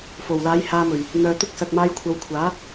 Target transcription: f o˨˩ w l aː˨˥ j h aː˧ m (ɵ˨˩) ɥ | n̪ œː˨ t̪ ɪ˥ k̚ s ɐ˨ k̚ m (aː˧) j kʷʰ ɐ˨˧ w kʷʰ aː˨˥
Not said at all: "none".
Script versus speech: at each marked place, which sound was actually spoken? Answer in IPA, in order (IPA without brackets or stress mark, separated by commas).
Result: ɵ˨˩, aː˧